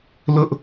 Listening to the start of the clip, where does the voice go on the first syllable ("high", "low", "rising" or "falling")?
high